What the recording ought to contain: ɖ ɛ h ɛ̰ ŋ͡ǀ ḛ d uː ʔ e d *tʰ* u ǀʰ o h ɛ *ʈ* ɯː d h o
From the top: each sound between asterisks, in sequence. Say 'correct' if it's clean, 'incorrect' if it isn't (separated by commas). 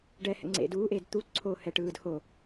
incorrect, correct